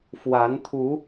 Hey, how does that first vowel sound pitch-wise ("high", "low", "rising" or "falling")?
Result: rising